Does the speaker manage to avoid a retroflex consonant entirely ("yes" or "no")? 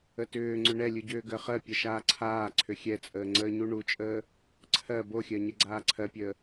no